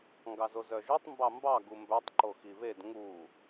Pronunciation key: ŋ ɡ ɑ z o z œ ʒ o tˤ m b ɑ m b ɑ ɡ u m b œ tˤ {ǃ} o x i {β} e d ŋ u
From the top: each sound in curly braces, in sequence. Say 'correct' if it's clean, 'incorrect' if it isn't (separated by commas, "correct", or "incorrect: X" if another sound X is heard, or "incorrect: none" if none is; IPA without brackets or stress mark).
correct, correct